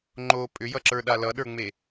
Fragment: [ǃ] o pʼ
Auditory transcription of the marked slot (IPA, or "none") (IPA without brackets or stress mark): ŋ͡ǃ